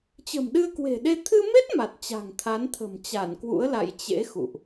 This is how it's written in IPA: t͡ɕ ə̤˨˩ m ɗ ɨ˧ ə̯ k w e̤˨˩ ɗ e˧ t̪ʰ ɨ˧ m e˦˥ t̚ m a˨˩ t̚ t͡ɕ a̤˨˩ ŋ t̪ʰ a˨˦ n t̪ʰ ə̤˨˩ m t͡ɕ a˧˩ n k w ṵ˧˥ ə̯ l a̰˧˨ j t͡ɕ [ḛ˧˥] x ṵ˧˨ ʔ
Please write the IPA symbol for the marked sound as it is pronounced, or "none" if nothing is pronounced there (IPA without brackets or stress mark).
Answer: ḛ˧˥